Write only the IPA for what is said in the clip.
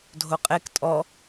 dʱoqʼek tʼɔ

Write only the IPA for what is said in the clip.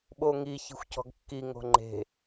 ɓoŋi çi̤xʷcɔ̤ɡkːi ŋo̤ŋ͡ǃe̤

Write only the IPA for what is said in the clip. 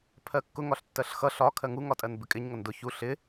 pʰɜkːʊ ŋɒɬtːɜɬxʌ ɬɒ kʰɜŋu ŋɒtʼɜnbɪkʼɪɲ ŋʌndʊ çu ɬɪ

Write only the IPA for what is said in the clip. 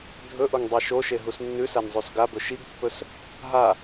dʱɵʔoŋ dˤeʃoʃe ɦusnːʉsan zˤʉsɡabɵ ʃiɡpːɵs | ɦa

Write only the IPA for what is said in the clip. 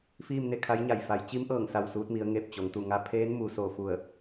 fiː˥˨mne˥˨kʰa˧˥jɲa˧˩j fa˩˧jt͡ɕi˧˥mʔɤː˧˩ŋ sa˧˩w suː˧t̚mi˩˧ə̯ ŋe˧˩p̚t͡ɕo˩˧ŋt̪u˧˩ ŋa˧pʰeː˧˥n mu˩˧so˧˩fu˧˩ə̯

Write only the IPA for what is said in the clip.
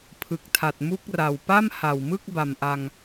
pʰɯ˨˩k̚tʰa˨˩t̚mu˦˥k̚ra˨˩w pa˥˩mha˨˩wmɯ˥˩k̚ba˨˩m ʔa˧ŋ

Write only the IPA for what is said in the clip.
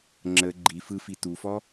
ŋ͡ǁə ɡ͡ǃi fɯfi tufɔ

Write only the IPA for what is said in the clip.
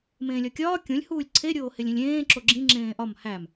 mẽːlʲɒkʲɒː kʲõlʲ huːlʲǀʰe ɾʲoːhelʲĩlʲẽː ǁoɡ͡ǁĩ ŋ͡ǁẽːʔɒm hæm

